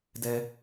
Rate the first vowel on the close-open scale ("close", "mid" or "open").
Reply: mid